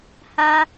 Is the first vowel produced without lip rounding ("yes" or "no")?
yes